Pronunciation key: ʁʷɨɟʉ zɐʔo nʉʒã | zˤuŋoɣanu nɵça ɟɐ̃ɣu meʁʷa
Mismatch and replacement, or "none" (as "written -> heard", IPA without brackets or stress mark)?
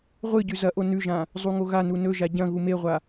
ç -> ʒ